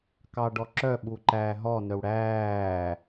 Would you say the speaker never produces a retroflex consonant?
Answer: no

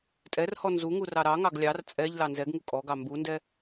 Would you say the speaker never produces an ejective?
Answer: no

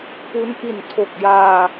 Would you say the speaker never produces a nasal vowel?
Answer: yes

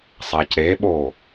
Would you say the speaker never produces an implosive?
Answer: no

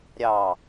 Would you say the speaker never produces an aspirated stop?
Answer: yes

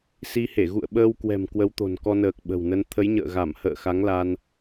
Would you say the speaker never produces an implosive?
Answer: no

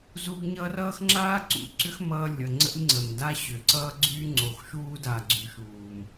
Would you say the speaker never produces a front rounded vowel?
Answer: no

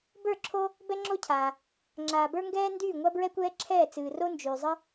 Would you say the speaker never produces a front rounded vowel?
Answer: no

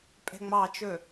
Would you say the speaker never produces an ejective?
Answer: no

